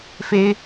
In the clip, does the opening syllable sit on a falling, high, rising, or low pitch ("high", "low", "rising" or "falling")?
high